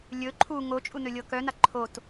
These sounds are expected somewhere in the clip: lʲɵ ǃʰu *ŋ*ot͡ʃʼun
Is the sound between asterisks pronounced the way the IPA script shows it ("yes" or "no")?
yes